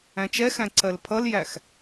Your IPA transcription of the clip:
æ̃t͡ʃɛxæ̃ ǀɜlpʰʌljæx

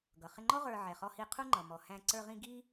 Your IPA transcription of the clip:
ɡʌ˩ χɪ˧ŋ͡ǃɔ˥ ʁə˞˧ ʕɛ˩χɔ˧hi˧ qʰu˥ŋ͡ǃʌ˩mɔ˩ hæ̃˧ ǀə˞˧ʁĩ˧ ɡi˥

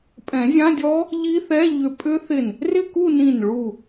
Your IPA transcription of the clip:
pʼɛ̃˨˩˦zʲã˧˥˧dʲɔ˦˥ | ʎi˦˥θɛ˧˥˧ʎʏ˧˩ pʼʏ˦˥ θɪ˧˩n | rɪ˥˧ku˥˧nĩ˧˩n ɭu˧˩

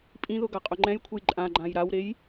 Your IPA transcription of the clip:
pʼĩðʊ ɡaqʼʊŋ͡ǃɛ̃jkʷʰej ǃʼã ɡ͡ǃãjɾawɾej

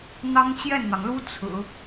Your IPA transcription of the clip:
n̪ɑ˥ŋt͡ɕjɛ˥˩nn̪ɑ˩ŋlu˥ t͡sʰɹ̩˨˩˦

